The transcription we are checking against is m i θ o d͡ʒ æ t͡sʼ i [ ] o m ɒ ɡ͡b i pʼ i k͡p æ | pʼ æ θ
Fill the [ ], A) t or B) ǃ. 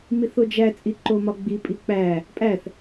B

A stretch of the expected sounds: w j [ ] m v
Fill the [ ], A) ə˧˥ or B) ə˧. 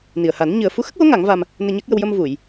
B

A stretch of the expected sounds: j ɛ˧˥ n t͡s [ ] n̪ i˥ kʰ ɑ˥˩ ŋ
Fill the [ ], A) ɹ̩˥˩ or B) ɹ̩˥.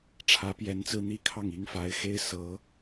B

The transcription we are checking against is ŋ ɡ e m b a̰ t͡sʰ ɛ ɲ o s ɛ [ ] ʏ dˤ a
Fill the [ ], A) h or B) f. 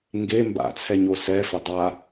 B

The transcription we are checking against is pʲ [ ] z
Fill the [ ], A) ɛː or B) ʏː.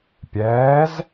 A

